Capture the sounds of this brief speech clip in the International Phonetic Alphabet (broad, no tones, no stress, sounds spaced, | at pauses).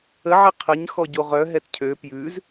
ə ʕ ɛ qʰ ə ɲ x ɔ ɟ o ʁ œ ɦ ɛ t cʰ ø p j ʉ z